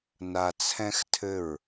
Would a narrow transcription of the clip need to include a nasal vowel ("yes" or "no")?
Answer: yes